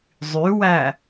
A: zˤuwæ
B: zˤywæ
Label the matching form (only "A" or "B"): B